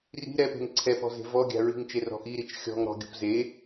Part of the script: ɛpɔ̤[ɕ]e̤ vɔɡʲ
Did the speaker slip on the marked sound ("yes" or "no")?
yes